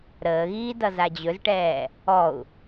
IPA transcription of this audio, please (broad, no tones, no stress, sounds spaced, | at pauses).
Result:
ɾ əː ɣ iː d ʌ z a d͡ʑ ɵ z ʈ ɛː | ɔ u̯